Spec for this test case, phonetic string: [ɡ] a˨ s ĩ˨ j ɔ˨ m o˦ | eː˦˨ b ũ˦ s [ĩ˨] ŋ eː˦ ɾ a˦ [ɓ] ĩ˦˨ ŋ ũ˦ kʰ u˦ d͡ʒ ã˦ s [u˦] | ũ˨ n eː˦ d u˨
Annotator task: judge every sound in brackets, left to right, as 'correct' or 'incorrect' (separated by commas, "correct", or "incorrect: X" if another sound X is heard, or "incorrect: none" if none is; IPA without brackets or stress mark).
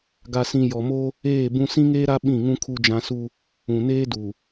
correct, incorrect: ĩ˦, correct, correct